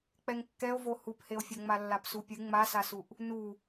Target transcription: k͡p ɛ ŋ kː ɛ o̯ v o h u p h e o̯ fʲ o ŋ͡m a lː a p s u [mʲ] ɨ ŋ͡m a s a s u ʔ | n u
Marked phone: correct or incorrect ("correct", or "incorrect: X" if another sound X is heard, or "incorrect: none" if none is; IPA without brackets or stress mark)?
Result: incorrect: pʲ